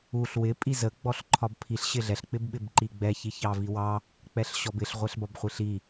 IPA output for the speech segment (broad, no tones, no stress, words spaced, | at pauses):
uɬ wɪ pʼizə ɡ͡bɔɬǃʰɒbpʰiɬ ɕɪɮɛɬ k͡pɪbɓɪbǃiɡ͡bɛ çiçɑviwɑ | k͡pɛɬɕɔbɪɬ ʁʷɛɬbɒbχʷiɬi